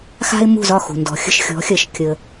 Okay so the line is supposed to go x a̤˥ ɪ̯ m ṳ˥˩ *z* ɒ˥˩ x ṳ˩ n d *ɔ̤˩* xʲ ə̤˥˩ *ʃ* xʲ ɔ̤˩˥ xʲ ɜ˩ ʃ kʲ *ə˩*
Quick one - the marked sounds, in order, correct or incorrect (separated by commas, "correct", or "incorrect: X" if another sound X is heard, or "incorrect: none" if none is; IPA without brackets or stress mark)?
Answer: correct, correct, correct, correct